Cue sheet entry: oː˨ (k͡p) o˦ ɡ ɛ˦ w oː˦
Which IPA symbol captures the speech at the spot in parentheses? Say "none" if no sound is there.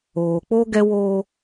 k͡p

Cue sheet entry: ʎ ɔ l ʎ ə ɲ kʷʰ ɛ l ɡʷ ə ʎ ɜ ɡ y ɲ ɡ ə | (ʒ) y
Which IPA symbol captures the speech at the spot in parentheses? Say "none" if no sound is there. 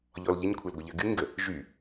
ʒ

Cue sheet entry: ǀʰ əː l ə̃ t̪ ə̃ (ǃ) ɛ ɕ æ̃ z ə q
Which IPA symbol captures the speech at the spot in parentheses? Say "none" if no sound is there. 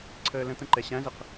ǃ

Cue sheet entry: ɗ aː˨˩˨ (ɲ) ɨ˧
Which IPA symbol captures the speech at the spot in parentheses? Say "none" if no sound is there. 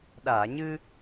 ɲ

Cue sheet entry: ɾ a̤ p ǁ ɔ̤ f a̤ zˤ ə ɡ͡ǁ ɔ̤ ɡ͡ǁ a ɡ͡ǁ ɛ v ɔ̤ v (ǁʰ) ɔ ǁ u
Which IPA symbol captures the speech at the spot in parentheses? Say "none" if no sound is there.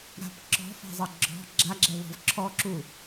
ǁʰ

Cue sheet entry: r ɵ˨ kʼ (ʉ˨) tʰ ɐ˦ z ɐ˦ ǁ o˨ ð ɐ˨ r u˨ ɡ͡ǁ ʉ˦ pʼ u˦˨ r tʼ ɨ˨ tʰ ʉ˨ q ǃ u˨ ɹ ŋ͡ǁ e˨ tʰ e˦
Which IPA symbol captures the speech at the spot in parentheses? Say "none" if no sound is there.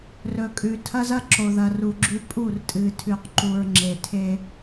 ʉ˨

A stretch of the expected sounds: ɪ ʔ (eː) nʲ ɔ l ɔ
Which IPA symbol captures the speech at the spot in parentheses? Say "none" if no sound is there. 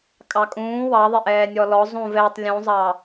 ɛː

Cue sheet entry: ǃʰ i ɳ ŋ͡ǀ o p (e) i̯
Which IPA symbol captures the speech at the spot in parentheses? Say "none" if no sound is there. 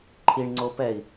ɛ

